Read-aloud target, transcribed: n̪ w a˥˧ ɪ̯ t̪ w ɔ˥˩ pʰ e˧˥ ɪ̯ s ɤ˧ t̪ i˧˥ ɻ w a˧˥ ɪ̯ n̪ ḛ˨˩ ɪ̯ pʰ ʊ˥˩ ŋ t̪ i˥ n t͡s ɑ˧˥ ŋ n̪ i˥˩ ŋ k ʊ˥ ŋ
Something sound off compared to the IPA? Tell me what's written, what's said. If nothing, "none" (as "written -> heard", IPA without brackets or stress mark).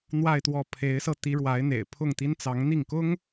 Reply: none